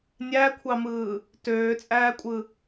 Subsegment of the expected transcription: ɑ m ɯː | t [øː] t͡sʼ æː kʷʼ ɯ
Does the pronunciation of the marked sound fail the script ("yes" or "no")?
no